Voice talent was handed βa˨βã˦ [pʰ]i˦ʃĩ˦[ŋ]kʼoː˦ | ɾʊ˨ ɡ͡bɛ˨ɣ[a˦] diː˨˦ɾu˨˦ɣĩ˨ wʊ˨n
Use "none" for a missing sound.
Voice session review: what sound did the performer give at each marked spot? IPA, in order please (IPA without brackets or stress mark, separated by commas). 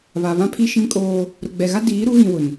pʰ, ŋ, a˦